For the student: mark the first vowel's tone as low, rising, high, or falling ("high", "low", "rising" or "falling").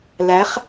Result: rising